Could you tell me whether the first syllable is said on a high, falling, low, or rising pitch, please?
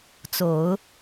low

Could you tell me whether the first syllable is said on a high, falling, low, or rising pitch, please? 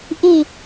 falling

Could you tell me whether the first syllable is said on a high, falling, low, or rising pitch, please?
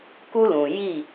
high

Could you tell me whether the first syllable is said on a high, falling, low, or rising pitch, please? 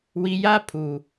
low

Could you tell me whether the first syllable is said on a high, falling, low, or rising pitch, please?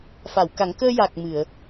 low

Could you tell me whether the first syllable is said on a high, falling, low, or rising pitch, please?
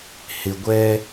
low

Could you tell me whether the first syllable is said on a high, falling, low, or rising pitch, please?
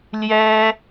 high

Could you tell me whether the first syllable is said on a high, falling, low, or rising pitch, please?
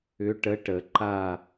rising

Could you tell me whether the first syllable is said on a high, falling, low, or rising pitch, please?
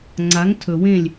rising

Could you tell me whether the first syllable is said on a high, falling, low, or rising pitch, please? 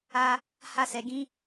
high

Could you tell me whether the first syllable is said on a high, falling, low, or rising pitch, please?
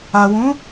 low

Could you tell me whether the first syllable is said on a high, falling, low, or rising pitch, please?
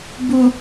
low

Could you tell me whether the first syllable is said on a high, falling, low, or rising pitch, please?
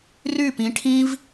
falling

